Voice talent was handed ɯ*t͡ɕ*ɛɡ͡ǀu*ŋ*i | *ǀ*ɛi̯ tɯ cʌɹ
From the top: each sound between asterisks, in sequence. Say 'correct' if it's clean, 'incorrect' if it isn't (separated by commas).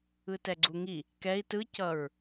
incorrect, correct, incorrect